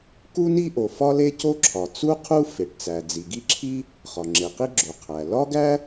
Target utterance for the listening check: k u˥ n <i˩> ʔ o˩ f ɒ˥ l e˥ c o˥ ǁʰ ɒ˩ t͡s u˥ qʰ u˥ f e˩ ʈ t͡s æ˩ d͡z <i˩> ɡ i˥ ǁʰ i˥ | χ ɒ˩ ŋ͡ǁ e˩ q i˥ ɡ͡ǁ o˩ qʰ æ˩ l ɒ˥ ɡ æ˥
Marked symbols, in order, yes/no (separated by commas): no, yes